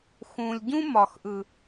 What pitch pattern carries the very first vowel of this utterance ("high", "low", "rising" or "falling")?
low